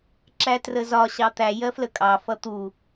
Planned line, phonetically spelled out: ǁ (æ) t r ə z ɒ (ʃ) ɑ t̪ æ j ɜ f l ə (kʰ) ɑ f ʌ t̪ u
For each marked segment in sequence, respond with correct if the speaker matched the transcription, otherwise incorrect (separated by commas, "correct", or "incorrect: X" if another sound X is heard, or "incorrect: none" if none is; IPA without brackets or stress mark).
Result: correct, incorrect: ɕ, incorrect: kʼ